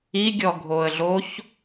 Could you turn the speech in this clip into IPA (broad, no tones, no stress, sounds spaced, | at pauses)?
i ɡʲ ɔ ɡʱ o ə̯ ɮ o ç